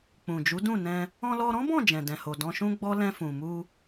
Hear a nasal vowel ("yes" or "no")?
yes